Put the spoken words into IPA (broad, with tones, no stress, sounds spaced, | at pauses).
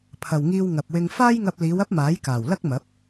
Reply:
pʰ ɐ˨ w ŋ iː˧ w ŋ ɐ˨ p̚ w ɪ˧ ŋ f aː˥ j ŋ ɐ˧ p̚ l iː˨˧ w ɐ˥ p̚ m aː˨˥ j k aː˨˩ w l ɐ˥ k̚ m ɐ˨˥ p̚